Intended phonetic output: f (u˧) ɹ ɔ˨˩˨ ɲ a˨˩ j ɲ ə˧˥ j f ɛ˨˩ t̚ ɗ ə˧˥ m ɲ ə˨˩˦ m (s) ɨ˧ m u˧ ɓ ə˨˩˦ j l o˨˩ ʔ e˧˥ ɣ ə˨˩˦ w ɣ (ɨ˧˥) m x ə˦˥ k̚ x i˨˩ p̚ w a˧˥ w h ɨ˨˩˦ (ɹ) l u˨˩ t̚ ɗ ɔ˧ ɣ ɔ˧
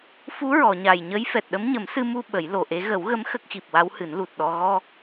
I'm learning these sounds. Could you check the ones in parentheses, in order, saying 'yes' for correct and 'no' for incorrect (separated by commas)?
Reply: no, yes, no, no